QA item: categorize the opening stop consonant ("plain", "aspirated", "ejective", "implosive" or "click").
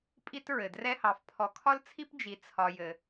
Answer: ejective